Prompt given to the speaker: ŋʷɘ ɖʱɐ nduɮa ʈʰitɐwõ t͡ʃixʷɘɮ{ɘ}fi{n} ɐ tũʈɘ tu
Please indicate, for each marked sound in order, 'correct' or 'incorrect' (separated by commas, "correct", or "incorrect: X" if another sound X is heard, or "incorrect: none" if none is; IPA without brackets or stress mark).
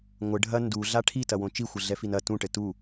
incorrect: ɛ, correct